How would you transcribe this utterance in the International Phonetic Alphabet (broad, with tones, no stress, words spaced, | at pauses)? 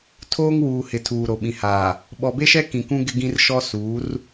tʰoː˦ŋwuː˨hɪ˨ tʰuː˨ɾo˨ɓĩ˨haː˨ | ɓɔ˨be˦ʃɛ˦ kĩ˨kũ˦ ɡɪ˦ɡĩ˦rʃɔ˦ suː˨˦r